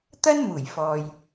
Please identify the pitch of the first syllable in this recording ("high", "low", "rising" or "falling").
high